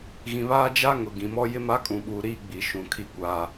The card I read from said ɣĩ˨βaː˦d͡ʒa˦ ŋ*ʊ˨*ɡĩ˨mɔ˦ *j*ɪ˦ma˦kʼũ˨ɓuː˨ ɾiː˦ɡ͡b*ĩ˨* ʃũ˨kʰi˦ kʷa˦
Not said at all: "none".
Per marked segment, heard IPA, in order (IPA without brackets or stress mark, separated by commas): ʊ˨, j, i˨